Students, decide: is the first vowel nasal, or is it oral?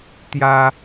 oral